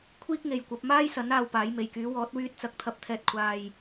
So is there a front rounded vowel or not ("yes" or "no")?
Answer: yes